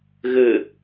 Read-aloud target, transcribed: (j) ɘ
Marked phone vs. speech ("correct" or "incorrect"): incorrect